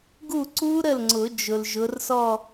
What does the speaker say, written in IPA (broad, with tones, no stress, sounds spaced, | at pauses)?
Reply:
ɡ u˥˩ ǀ u˦˥ ɾ ə˥˩ l ŋ͡ǀ ʊ˨˩˦ d͡ʒ ʊ˨ l ʒ ʊ˨˦ r s ɔ˥˧